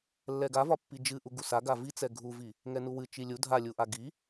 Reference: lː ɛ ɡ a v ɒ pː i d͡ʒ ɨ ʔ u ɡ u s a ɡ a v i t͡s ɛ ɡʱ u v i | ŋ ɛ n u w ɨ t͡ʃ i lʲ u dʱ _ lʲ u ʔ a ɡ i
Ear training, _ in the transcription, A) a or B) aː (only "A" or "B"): A